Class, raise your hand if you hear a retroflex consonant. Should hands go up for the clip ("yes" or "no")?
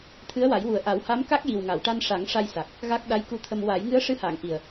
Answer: yes